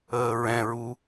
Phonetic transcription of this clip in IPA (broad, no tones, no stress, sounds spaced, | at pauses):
əː ɹ ɛ̃ ɹ u